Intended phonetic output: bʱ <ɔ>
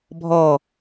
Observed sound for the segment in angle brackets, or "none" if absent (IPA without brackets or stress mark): ɔ